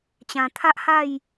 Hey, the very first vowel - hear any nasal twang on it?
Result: yes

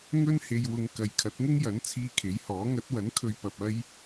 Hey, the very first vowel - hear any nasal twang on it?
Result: no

